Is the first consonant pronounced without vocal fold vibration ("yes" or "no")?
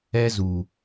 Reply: no